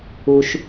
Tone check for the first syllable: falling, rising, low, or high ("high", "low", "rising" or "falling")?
low